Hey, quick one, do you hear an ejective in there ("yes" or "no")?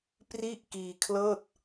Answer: no